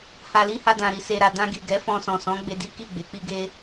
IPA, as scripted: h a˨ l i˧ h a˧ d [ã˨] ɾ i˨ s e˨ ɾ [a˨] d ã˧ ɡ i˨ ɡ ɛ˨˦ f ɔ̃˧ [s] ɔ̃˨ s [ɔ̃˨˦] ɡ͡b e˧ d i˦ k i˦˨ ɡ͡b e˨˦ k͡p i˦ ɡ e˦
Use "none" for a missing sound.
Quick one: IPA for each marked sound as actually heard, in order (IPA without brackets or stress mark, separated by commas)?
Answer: ã˨, a˨, s, ɔ̃˨˦